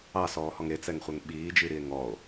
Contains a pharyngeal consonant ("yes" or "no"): no